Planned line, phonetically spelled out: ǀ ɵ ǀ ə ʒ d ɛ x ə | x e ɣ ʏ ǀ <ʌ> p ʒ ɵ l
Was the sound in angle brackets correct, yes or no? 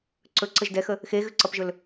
yes